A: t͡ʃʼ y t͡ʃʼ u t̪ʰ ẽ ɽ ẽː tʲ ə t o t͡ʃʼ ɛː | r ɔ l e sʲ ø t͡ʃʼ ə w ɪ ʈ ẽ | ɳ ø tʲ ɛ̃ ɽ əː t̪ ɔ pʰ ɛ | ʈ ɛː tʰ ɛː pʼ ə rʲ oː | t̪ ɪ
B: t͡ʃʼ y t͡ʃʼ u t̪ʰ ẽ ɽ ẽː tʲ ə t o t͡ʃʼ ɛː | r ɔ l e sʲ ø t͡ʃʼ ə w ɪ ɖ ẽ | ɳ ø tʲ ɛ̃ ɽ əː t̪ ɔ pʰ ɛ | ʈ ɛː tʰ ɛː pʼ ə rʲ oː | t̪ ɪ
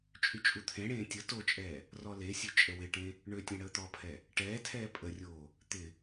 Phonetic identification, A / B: A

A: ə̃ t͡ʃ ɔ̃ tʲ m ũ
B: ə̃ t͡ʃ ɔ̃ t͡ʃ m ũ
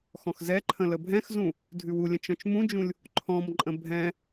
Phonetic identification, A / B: B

